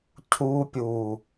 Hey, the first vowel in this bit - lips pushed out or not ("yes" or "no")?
yes